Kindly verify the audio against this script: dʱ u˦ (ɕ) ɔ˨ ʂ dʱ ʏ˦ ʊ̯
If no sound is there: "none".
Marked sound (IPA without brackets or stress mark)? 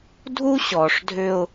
ɕ